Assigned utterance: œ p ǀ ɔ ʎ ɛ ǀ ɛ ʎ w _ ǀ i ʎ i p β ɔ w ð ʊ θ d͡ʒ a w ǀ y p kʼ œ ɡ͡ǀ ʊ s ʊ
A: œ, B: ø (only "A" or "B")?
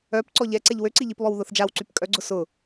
B